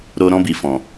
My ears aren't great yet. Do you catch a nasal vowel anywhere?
yes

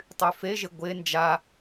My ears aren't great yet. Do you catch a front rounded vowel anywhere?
yes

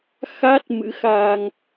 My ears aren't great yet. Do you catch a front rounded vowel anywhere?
no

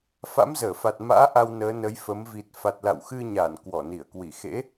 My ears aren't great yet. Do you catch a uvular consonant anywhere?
no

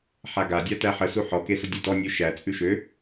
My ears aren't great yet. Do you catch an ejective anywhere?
yes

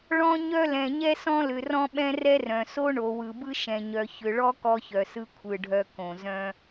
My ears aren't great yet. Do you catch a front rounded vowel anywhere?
yes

